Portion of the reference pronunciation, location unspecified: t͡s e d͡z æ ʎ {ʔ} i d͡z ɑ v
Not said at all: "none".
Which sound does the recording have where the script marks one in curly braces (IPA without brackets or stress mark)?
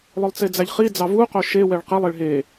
χ